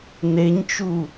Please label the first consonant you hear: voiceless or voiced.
voiced